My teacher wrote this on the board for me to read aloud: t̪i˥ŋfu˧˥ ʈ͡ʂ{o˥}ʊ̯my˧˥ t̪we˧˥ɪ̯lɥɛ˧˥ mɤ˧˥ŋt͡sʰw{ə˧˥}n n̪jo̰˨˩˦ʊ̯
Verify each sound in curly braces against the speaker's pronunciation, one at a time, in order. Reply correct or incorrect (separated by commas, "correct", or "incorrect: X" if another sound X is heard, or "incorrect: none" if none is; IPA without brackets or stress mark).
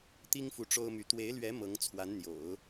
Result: correct, incorrect: a˧˥